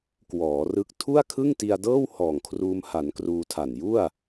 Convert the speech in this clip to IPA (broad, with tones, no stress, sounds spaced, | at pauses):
k w ɔː˩˦ r ɯ˦˥ k̚ tʰ u˥˩ a̯ kʰ ɯ˥˩ ŋ t i˧ a̯ d ɤː˥˩ w h ɔː˨˩ ŋ kʰ r uː˧ m h a˩˦ n k r uː˧ tʰ a˨˩ n j u˥˩ a̯